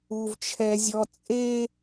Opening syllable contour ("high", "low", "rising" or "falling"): high